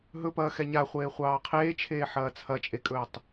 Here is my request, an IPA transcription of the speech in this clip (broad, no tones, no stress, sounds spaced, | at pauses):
ɦ ɵ p ɐː x ɛ ɲ a χʷ eː χʷ ɑː qʰ eː t͡ʃʰ eː ħ ɐː t͡sʰ ɐ t͡ʃʼ e kʼ ɵː tˤ